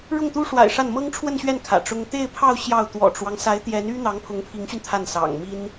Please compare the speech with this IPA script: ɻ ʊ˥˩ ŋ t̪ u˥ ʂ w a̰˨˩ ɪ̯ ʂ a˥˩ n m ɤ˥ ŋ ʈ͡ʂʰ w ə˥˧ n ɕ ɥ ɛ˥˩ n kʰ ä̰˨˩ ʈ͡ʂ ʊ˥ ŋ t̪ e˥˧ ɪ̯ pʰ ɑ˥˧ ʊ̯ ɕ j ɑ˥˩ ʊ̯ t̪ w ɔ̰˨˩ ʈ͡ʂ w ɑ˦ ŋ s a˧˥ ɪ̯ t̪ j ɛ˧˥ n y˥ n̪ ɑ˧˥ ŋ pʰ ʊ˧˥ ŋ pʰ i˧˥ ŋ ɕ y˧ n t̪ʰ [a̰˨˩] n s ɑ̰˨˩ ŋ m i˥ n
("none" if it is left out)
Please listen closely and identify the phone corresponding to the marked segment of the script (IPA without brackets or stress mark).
a˥˩